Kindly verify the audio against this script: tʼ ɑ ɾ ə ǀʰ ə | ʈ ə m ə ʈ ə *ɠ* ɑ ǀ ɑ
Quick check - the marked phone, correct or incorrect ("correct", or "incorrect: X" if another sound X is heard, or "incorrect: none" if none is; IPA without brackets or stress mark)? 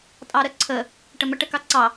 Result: incorrect: k